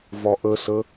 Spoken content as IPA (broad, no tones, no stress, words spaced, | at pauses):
vɒʔəsə